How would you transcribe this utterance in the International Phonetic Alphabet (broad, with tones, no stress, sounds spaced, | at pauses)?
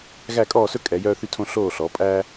ɣ æ˦˨ kʼ ɔː˦˨ s ɵ˦ kʼ ɛ˩˧ j œː˦ θ y˦ tʰ õ˦ ɬ oː˦˨ ɬ ɔ˩˧ pʼ æ˦